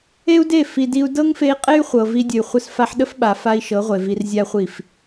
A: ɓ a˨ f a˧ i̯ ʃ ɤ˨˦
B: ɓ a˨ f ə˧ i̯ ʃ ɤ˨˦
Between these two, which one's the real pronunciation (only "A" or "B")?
A